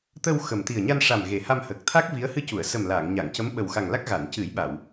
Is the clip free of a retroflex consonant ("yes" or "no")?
no